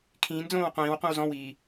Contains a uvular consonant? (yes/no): yes